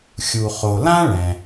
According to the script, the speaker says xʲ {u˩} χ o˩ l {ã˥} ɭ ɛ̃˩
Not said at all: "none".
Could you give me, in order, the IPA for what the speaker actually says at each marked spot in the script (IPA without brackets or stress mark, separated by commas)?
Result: u˩, ã˥